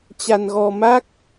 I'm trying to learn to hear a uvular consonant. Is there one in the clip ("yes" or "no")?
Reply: no